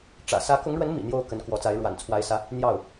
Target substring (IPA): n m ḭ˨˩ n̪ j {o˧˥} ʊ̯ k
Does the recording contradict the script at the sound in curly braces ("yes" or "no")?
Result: yes